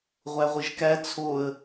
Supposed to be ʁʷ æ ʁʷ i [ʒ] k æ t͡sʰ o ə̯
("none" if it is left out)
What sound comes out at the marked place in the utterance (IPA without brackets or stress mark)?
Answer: ʒ